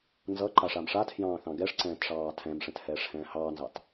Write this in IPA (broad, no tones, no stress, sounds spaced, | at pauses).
n z ʌ ǃ a ʂ a m ʂ a tʰ j ɑ̃ː θ ɑ̃ ɡ ɛ ʂ ǀ ɛ̃ː t ʂ ɑː tʰ ɛ̃ m ʂ ɛ̃ t h ɛː ʂ h ɛ̃ː h ɑː n z ɑ t